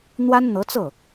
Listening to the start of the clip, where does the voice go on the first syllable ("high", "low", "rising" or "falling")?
high